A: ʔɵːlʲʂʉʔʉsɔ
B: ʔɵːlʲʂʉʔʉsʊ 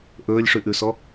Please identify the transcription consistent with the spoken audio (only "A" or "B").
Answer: A